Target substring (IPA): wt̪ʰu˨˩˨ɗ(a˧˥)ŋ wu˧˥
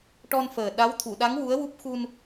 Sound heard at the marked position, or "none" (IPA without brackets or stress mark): a˧˥